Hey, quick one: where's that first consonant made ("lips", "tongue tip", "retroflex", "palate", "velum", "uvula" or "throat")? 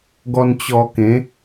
velum